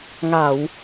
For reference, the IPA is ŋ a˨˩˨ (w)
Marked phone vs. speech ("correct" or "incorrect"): correct